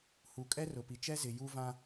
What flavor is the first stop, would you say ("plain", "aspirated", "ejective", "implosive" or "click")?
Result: ejective